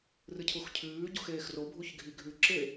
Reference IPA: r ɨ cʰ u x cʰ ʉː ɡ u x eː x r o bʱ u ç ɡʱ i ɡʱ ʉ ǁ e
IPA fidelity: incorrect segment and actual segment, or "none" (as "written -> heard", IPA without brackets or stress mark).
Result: ɡ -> ɟ